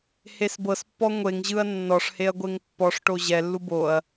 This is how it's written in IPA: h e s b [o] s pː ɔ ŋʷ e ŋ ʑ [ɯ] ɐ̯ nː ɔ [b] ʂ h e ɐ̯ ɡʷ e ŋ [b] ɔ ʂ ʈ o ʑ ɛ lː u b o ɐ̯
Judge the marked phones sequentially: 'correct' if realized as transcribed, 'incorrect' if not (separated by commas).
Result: incorrect, correct, incorrect, incorrect